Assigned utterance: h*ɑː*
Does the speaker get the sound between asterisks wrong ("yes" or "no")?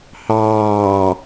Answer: no